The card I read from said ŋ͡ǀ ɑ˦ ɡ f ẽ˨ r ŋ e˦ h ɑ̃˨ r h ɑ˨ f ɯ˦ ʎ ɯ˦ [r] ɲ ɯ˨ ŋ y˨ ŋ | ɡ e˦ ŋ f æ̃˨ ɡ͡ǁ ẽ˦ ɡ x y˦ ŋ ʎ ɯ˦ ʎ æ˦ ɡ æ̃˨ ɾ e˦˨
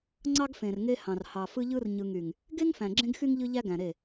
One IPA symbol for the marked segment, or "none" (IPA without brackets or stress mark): r